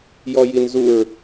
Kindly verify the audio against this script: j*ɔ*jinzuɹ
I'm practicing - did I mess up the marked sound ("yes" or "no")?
no